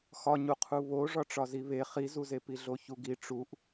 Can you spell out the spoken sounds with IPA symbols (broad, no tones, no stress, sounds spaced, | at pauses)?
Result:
x ɒ ɲ u qʰ u β o ʐ ɒ ʈ͡ʂ ɒ z i β e χ i z u z e p i ɮ o ç u ɡ i ʈ͡ʂ u ʔ